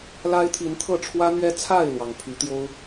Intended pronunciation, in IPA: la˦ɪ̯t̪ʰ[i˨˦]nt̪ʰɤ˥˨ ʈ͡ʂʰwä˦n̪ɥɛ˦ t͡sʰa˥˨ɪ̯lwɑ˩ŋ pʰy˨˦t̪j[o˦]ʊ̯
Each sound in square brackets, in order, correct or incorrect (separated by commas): correct, correct